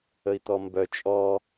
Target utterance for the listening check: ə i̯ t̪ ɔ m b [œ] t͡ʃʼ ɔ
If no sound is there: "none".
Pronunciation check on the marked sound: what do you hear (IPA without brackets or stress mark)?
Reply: œ